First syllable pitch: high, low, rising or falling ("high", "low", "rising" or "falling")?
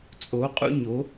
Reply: rising